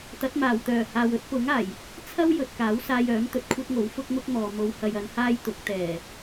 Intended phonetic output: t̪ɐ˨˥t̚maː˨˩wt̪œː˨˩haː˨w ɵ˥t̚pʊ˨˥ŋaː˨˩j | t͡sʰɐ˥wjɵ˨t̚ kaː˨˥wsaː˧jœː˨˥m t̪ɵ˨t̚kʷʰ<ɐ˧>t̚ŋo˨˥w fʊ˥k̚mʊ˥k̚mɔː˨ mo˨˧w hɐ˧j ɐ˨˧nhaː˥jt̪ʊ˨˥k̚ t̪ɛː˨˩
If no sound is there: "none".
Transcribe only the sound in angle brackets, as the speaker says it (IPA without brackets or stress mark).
ɐ˥